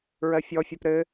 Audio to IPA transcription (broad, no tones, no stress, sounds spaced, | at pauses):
ɹ ɜ fʲ ɔ fʲ ɜ p ɾ ɘ